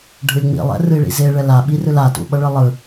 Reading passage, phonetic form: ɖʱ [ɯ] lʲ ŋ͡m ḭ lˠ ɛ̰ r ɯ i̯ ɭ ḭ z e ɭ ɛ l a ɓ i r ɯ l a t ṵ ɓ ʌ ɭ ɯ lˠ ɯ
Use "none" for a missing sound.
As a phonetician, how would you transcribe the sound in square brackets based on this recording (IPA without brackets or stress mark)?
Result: ɯ